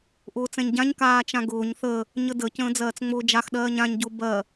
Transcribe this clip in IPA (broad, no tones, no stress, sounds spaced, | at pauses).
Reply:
ʔ ʊː t͡s ɛ̃ ɲ ɟ ã ɲ k aː t͡ʃ ã ɡ ʊː ɲ θ ə | ɲ ə d ə c ə̃ː d͡z ɜː t͡s ŋ͡m ʊː d͡ʒ a x ɗ ɜː ɲ ã ɲ ɟ ʊ b ɜ